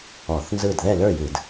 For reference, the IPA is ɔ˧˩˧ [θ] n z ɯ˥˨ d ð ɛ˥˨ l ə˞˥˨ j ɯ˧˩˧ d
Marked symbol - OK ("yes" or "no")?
yes